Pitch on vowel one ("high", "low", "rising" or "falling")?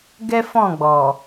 high